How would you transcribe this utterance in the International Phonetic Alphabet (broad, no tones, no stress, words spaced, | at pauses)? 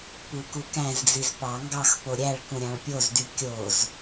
pukukæ̃zd͡ziz pɑ ŋɡɑxpo ɾʲæɭ kũɾʲɑ̃ɭpʲozdy kʲoz